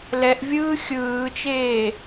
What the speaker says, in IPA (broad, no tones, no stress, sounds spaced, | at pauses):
l ɛ ʔ vʲ ɯː xʲ ɯː t͡ʃ eː